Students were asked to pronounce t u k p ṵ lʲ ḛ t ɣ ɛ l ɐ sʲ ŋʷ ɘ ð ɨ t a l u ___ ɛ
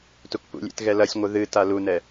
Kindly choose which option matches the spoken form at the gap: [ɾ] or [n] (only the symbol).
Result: n